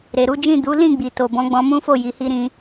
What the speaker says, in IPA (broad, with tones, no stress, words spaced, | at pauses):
ɾe˨ɾu˨˦d͡ʒĩ˦˨ du˨˦lĩ˦˨ ɡ͡bi˨to˨bɔ̃˨˦ ɡ͡bɔ̃˧mũ˦fo˦˨ ji˨hi˧ɾĩ˧